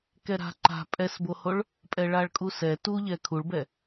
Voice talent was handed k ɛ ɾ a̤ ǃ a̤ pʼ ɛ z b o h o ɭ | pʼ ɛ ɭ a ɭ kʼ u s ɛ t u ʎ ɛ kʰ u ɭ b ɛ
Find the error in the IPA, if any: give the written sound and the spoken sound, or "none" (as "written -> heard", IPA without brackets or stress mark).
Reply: z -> s